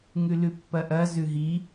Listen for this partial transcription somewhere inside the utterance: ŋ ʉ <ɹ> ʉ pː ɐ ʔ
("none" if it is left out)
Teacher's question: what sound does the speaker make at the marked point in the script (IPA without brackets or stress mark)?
l